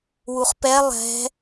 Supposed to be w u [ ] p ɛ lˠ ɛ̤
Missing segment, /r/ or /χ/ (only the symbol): χ